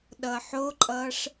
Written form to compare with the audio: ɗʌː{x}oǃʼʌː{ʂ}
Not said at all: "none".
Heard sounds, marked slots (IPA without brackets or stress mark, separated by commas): ħ, ʂ